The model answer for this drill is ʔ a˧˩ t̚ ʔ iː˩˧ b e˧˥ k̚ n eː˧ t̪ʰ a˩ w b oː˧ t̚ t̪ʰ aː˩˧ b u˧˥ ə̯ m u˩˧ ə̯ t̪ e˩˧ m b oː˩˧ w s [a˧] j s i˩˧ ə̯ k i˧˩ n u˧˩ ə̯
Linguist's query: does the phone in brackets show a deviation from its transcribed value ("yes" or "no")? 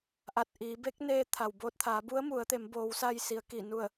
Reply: no